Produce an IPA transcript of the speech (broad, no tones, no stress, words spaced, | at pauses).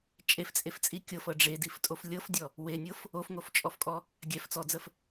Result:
t͡ʃʼeft͡sʼeft͡sʼi kʲɤfɤ ɖ͡ʐediftʼof lʲɤfdʲɔ | wenʲɤf | ofŋoft͡ʃʼɔfkʼɔ | ɡʲɛft͡sɔd͡zəf